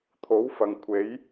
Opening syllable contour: rising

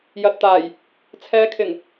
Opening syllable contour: low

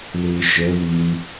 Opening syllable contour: low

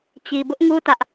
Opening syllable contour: low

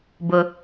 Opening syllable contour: low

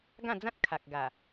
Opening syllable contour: falling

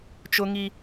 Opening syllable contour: high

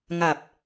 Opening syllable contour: low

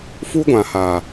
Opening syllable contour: high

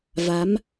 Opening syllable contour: rising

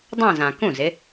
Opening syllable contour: falling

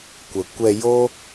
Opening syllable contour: low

